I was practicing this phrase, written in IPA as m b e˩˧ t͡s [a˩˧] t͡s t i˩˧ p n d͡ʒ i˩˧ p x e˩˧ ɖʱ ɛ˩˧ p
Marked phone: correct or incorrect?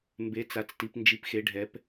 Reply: correct